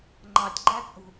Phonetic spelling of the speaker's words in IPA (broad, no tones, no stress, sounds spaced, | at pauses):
ŋ͡ǃ ɑ tʲ ɡ͡ǃ æ t͡sʼ ṳ